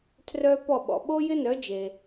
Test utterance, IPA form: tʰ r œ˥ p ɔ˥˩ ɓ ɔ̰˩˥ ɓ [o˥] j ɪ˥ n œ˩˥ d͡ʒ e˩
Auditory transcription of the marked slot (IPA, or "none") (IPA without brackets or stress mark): o˥